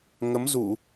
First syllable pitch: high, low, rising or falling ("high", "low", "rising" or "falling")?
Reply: rising